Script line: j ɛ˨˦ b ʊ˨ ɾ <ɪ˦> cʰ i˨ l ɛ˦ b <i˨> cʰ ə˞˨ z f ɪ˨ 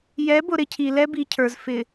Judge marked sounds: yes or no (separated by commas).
yes, yes